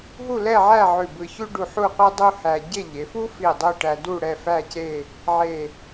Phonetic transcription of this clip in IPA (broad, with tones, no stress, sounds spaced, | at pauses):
ɦ u˥˧ l ɛ˥˧ ʕ æ˥˧ ʕ ʉ˧˩ b ɯ˧ ç ʉ˥ ɖ u˧ ħ u˥˧ qʷ e˥ dˤ u˥ h æ˧ ɟ e˥˧ ʎ e˩˧ f u˥ f i˧˩ dˤ o˥˧ ʈ æ˧ d u˥˧ ɽ ɛ˥˧ f æ˥˧ c e˥˧ | ʕ e˧˩